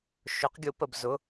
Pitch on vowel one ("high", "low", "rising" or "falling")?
rising